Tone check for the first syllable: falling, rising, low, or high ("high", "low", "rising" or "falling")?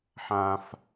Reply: high